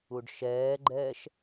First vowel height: high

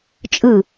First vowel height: high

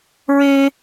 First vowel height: mid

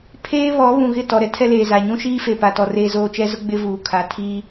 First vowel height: mid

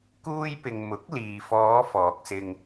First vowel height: high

